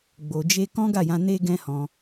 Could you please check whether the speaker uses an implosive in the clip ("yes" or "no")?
no